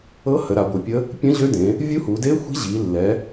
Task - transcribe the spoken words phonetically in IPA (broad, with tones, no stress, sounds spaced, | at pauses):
ɤ˧˥ h ə˩˧ ɾ a˩˧ ɡʷ ɯ˩˧ pʲ ə˧˥ | pʲ ə̃˧˥ ʑ ø˧˥ d ẽ˩˧ | vʲ u˧˥ h u˩˧ d e˧˥ xʷ i̤˧˥ ʑ i˩˧ lː ɛ˩˧